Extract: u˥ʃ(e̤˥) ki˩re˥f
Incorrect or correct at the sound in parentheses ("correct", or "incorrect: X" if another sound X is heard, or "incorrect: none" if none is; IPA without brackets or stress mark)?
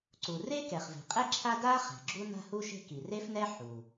correct